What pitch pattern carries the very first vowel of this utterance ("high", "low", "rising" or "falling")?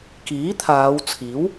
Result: rising